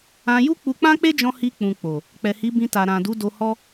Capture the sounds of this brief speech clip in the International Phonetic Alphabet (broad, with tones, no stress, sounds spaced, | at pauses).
ã˧ j u˦ k͡p u˧ k͡p ã˦ k͡p e˦ d͡ʒ ɔ̃˧ h i˧ k͡p ũ˨ k͡p o˨ | k͡p ɛ˨ h i˨˦ b ĩ˧ t a˨ ɾ ã˨ d u˨˦ d o˧ h ɔ˦